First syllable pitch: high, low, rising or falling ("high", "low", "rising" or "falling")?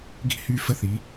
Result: falling